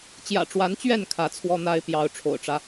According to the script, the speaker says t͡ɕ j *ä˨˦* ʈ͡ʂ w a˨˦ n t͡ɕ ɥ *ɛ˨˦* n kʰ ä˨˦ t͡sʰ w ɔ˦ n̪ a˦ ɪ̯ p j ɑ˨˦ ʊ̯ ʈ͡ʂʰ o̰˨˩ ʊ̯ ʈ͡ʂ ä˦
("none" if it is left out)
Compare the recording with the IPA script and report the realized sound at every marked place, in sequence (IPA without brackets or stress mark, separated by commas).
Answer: ä̰˨˩, ɛ˥˨